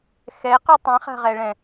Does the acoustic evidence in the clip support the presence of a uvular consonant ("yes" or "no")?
yes